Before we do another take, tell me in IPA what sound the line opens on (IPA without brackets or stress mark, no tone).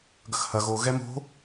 ɡ